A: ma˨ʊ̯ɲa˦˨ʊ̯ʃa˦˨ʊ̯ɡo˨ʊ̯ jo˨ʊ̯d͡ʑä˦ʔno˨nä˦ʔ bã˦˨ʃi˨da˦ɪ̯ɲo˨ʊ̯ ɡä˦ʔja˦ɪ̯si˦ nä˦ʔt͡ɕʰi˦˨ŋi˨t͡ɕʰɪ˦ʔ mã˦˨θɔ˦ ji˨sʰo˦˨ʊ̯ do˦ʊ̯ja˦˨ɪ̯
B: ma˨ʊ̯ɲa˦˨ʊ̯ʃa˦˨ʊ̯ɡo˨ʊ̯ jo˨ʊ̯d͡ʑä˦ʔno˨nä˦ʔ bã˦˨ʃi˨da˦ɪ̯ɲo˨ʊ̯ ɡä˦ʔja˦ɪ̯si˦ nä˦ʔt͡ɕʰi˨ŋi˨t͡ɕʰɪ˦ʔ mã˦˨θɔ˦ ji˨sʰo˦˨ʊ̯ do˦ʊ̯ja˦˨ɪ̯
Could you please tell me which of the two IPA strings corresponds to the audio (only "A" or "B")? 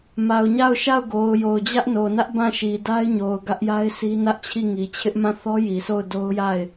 A